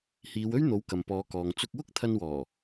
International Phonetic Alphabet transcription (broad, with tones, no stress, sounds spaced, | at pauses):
h iː˨˧ w ɵ˥ ɥ n̪ o˨˥ w k ɐ˨ m p ɔː˨˧ k ɔː˨ ŋ t͡s ʊ˧ k̚ w ʊ˥ k̚ t̪ʰ ɐ˧ n w ɔː˨˩